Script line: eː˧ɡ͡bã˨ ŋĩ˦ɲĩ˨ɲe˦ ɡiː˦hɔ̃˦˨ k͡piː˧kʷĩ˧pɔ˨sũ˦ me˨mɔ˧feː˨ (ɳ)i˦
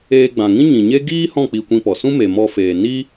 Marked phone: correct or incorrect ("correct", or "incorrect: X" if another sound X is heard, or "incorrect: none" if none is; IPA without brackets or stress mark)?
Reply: incorrect: n